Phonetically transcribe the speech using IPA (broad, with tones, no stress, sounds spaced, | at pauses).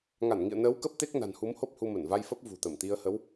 ŋ a˧˩ n ŋ ḭ˧˨ ə̯ n əː˨˦ w k ə˦˥ p̚ t̪ e˦˥ k̚ n a̤˨˩ n h u˨˦ m h o˦˥ p̚ h u˧ m ə˧˩ n v a˧ j f ə˦˥ p̚ v ṳ˨˩ t̪ ə˧˩ m t̪ i˧ ə̯ h ə˨˦ w